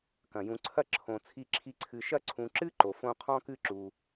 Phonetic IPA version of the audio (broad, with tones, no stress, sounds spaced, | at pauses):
k ɐ̃˩ j ũ˨ ǀʰ ɐ˦ ǁʰ õ˨ t͡sʰ i˦ ǁʰ i˦ ǀʰ ɨ˨ ʃ ɐ˥ ǀʰ ũ˨ ǁ ɨ˥ ǃ o˩ f õ˦ qʰ ɔ̃˥ k ɨ˥ ǁ u˨